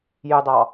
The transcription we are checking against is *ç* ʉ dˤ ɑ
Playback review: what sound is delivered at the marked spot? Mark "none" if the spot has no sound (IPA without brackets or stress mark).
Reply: j